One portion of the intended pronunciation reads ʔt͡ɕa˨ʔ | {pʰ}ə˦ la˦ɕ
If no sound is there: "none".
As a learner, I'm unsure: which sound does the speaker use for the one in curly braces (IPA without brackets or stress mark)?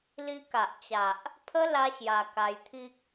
pʰ